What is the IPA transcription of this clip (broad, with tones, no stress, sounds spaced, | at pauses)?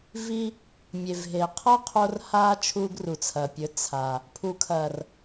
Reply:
v i˧ | mʲ e˨ v ɦ e˨ qʰ ɐ˦ qʰ o˧ r h a˦ t͡ʃʰ u˧ ɡ r u˨ t͡sʰ ɐ˨ pʲ ɵ˨˦ t͡sʰ a˨ | pʰ u˨ kʰ ɐ˨ r